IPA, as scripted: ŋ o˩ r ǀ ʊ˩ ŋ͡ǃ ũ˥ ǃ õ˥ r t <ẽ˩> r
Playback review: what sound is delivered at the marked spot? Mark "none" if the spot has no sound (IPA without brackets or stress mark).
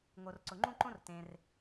ẽ˩